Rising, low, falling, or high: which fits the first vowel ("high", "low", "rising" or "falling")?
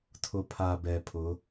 low